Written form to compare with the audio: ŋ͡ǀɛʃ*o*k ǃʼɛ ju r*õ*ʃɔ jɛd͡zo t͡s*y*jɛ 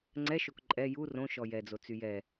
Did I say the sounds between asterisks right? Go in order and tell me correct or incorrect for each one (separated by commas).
correct, correct, correct